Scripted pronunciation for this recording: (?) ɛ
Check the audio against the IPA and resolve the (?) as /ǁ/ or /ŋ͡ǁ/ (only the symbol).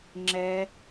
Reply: ŋ͡ǁ